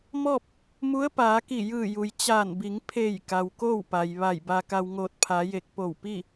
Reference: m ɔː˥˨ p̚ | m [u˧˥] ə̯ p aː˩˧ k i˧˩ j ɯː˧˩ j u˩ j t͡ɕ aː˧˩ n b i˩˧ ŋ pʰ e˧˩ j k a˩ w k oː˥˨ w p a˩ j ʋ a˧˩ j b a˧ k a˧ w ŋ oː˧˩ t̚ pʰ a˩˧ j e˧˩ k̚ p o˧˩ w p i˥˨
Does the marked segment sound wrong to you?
no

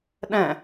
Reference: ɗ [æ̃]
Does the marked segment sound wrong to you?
yes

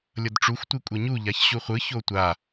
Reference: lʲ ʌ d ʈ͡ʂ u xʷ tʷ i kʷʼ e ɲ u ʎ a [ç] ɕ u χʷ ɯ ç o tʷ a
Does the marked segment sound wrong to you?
no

